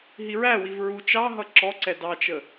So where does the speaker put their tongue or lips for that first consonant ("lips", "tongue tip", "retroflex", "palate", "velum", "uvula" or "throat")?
throat